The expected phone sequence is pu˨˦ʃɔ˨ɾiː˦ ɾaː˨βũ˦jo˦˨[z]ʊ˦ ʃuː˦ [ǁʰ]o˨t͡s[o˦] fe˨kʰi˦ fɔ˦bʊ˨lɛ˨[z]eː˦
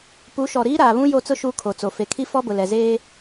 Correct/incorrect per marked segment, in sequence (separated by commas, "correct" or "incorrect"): incorrect, incorrect, incorrect, correct